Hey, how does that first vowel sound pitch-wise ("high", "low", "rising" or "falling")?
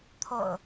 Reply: low